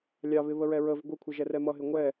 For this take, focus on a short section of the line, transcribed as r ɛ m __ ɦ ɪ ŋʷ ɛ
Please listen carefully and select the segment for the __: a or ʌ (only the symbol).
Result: ʌ